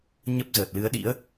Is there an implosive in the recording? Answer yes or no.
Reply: yes